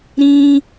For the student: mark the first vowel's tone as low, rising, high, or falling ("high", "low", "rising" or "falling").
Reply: high